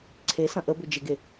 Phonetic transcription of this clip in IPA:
ǀʰ e s ɐ̃ ʔ ə b ʏ d͡ʒ ɪ ɡ e

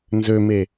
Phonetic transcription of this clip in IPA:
n z ø m e

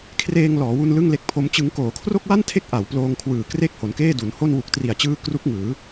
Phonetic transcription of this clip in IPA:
kʰ r eː˧ ŋ l ɔː˩˦ w u˧ n l ɯ˥˩ ŋ l e˦˥ k̚ pʰ o˦˥ m t͡ɕ ɯ˦˥ ŋ k oː˩˦ kʰ r o˥˩ k̚ w a˥˩ n tʰ e˦˥ k̚ ʔ a˩˦ w p l oː˧ ŋ kʰ w ɯː˨˩ k r e˥˩ k̚ h o˩˦ n k eː˥˩ d u˩˦ n h o˥˩ n w u˨˩ k̚ t r i˨˩ a̯ t͡ɕ ɯː˧ k r u˦˥ k̚ ŋ ɯː˩˦

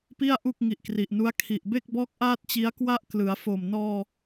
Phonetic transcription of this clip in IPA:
p i˥˩ a̯ ʔ u˥˩ k̚ ŋ i˨˩ ʔ k r i˨˩ ʔ n u˦˥ a̯ kʰ i˨˩ ʔ b e˥˩ k̚ b ɔː˦˥ k̚ ʔ aː˥˩ t̚ t͡ɕ i˦˥ a̯ k w a˥˩ ʔ k l ɯ˩˦ a̯ f o˨˩ m n ɔː˧

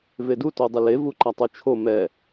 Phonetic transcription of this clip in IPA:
v e d u t o dˤ ɪ l e v u ǃ a tˤ u t͡ʃʰ o m ɛ

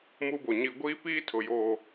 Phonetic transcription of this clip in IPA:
m u˦ b o˨ ɲ i˦ ɡʷ iː˦ p iː˦ tʰ ʊ˨ j o˨

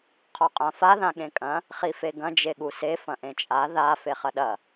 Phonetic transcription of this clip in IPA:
qʰ ɔ qʼ ã f a ð ã ɠ ẽ kʼ ɐ̃ | χ i f e ɡ ɐ̃ d͡ʒ e ɠ u s e f ɐ̃ ʔ ẽ t͡ʃʼ a ð a f e χ ɐ ɗ ɐ

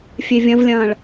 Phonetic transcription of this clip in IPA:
fʲ e vʲ ɐ̃ v lʲ ɐ̃ː ɭ

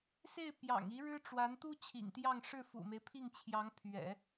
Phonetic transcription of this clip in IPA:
s e˥˩ ɪ̯ p j ɑ̰˨˩ ŋ i˧˥ ɻ ɻ̩˥ ʈ͡ʂ w a˧˥ n t̪ u˥ t͡ɕʰ ḭ˨˩ ŋ t̪ j ɑ˥˧ ŋ ʂ ɻ̩˥˩ f ṵ˨˩ m e˦ ɪ̯ pʰ i˥˩ ŋ t͡ɕʰ j ɑ˧˥ ŋ pʰ ɥ ɛ̰˨˩˦

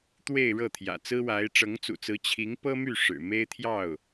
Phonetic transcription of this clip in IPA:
t̪ w e˥˧ ɪ̯ ɻ ɤ˥˩ t̪ʰ j ä̰˨˩ t͡s ɹ̩˥ w a˧˥ ɪ̯ ʈ͡ʂ ɤ˧˥ ŋ t͡s ṵ˨˩ t͡s ɹ̩˧˥ t͡ɕʰ i˧˥ ŋ p ɤ˥ m y˥˩ ʂ ɻ̩˨˩ m e˥ ɪ̯ t̪ʰ j ɑ˥˩ ʊ̯

